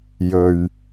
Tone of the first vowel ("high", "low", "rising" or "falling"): low